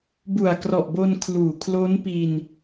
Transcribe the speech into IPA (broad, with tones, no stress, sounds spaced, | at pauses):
b u˨˩ a̯ k r ɔ˨˩ ʔ b o˧ n kʰ l uː˨˩ kʰ l o˦˥ n p i˧ n